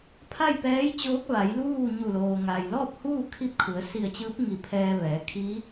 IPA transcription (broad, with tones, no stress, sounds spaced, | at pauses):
pʰ a˥˨ j p ɛː˧˥ j t͡ɕ oː˧˥ k̚ ʋ a˩˧ j l uː˥˨ ɲ u˧˩ l oː˩ ŋ a˩ j l ɔː˥˨ p̚ h uː˥˨ kʰ i˥˨ p̚ kʰ u˩˧ ə̯ s i˧˩ ə̯ t͡ɕ ɯː˧˥ p̚ ŋ i˧˩ pʰ ɛː˧ ʋ ɛː˩˧ kʰ iː˧˥